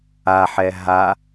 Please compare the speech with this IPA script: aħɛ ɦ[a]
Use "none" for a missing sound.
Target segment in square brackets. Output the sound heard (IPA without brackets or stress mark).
a